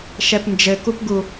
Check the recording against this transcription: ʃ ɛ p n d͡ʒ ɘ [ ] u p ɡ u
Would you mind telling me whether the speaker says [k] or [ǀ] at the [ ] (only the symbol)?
k